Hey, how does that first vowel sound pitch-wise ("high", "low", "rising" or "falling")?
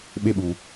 high